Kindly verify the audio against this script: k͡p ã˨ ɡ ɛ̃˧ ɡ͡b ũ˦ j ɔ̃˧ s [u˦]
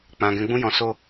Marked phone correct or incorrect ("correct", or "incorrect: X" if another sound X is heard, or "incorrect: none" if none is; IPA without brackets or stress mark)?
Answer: incorrect: o˦